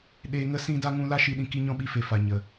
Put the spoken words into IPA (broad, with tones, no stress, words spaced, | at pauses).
ɗeː˧ŋə˦sĩ˦ da˦ŋũ˦ la˦ʃi˧ɗĩ˧ ki˦ɲɔ̃˦ɓi˦fe˨ fa˨ɲə˨